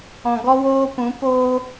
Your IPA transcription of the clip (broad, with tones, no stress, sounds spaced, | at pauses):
ɔ̃˨ ɡ ɔ˦ w oː˦ p ũ˨˦ p oː˧